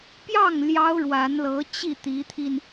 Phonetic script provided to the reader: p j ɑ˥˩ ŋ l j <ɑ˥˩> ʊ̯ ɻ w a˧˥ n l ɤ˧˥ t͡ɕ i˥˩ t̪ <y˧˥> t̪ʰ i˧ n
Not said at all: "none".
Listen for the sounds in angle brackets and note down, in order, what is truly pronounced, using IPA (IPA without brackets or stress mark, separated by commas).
ɑ˥, i˧˥